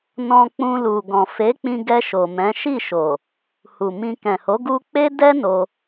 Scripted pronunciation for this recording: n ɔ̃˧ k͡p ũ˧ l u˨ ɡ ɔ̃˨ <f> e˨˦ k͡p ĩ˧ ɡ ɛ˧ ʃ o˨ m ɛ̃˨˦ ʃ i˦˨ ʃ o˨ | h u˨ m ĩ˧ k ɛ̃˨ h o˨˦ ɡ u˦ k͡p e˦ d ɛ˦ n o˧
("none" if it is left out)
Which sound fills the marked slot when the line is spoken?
f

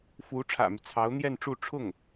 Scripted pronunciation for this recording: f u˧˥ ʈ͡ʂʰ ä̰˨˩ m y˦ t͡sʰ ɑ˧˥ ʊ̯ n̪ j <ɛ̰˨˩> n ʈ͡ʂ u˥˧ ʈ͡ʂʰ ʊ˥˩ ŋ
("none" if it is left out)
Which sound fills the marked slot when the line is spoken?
ɛ˥˧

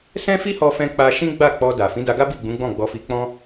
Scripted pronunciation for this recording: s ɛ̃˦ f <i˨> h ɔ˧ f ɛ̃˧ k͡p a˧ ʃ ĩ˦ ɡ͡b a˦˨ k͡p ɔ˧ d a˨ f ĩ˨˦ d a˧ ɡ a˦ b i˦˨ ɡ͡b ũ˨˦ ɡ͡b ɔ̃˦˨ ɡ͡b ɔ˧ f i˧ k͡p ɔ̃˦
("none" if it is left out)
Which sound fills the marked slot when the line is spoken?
i˦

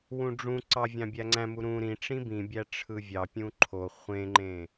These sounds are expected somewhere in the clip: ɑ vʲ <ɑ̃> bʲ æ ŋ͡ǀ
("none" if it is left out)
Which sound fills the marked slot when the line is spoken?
ɑ̃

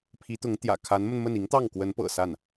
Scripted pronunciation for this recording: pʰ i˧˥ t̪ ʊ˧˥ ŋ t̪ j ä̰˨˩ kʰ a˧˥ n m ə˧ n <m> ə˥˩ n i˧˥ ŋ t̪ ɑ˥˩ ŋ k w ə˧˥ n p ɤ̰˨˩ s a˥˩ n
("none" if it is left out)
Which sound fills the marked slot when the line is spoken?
m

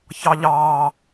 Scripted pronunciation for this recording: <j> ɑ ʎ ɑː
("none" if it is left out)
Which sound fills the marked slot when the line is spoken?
ç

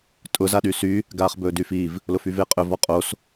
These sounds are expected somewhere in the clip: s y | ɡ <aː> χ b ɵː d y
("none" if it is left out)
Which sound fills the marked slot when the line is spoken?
aː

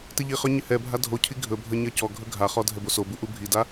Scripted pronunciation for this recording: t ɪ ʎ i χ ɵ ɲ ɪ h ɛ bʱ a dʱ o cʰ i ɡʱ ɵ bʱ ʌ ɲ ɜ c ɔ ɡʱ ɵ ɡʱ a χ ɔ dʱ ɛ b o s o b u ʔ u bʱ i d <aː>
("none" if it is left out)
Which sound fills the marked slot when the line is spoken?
a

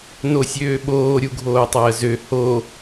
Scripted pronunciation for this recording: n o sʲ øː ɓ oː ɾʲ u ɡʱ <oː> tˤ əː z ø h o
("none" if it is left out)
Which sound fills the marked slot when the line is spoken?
oː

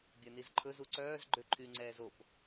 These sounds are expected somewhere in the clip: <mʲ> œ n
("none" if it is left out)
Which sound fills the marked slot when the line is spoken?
bʲ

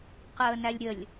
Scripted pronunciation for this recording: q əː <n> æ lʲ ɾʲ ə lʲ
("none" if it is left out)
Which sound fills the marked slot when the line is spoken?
n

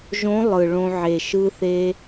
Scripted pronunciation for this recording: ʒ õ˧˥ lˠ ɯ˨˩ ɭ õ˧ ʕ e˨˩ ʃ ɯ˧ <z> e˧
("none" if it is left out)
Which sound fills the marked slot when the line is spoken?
θ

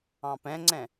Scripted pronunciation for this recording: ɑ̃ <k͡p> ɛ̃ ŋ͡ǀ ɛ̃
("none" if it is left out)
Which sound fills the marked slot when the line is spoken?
p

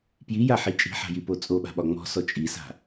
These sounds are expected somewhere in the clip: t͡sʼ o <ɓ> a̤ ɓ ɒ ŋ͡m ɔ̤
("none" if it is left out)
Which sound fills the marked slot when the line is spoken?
ɓ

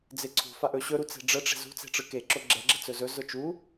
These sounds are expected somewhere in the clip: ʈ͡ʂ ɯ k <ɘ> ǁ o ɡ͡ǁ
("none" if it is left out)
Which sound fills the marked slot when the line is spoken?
e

